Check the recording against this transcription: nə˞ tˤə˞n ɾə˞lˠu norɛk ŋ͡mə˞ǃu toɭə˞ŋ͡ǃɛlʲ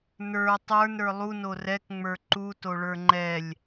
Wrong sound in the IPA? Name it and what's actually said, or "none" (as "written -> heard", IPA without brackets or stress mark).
none